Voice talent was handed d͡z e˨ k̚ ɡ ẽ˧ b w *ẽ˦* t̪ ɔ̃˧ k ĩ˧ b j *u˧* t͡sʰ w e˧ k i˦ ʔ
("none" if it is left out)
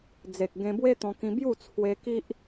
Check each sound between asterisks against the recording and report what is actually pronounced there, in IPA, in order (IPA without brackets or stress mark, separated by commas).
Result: e˦, u˥˧